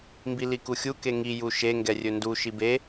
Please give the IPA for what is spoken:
mbilikuxʲu keŋi juʃe ŋɡɛrʲɵndu ʃibe

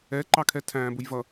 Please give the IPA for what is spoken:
ɛ ǃɑkʰɛtʰæ̃ːbʊj vʌ

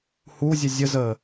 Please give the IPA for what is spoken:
huzʲə zʲəzəː

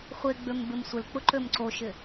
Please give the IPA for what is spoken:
χʷeɡ͡bøm bɪmsʷɪlk͡pʊ ǃømǀoʃɪ

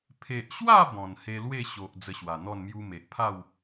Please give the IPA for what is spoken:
pʰe˨ʔɕwa˥˧ bɔ̃˨˩n he˧lwe˥˧ ɕo˨ʔ d͡zə˧ɕwa˨˩n̪ɔ˥˧n mju˧me˨ʔpʰa˥˧w

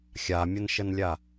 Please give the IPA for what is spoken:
xʲamʲənʃənlʲa

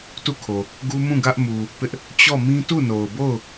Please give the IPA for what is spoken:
tu˦˨kʰo˨ | ɡu˦mũ˦˨ ɡä˦ʔ mu˨ | pɪ˦ʔ | t͡ɕɔ˦˨mĩ˦ tu˦˨no˨ʊ̯bo˦˨ʊ̯

